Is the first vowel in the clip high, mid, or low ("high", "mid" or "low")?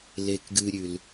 mid